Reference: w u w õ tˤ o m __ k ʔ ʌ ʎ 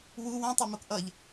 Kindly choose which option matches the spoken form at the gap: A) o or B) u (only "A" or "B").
A